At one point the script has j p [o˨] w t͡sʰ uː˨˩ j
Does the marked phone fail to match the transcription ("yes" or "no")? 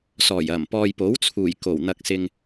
yes